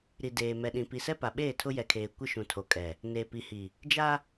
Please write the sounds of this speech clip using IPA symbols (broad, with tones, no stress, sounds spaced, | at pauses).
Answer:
ɾ i˨ d eː˨ m ɛ˨ ɗ ĩ˨ p i˨ s ɛ˦ p a˨ ɓ eː˦˨ tʰ ʊ˦ j ɛ˨ kʰ eː˨ kʷ ɪ˦ ʃ ũ˨ tʰ o˨ kʼ ɛ˨ | n eː˨ p i˨ h i˨ | d͡ʒ a˦